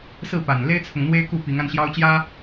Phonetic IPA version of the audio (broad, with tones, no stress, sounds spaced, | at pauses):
s ɹ̩˥˨ p a˨˩ n l e˦ ɪ̯ t͡sʰ ʊ˨ ŋ n̪ w e˦ ɪ̯ k u˥˨ p i˨˦ ŋ a˧ n ɕ j ɑ˦ ʊ̯ t͡ɕ j ä˦